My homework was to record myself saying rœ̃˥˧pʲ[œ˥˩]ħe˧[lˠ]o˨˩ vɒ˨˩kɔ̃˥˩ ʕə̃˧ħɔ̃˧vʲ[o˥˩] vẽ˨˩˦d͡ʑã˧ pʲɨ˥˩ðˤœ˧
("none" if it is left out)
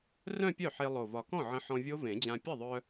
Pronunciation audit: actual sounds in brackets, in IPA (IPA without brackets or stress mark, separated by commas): œ˥˩, lˠ, o˦˥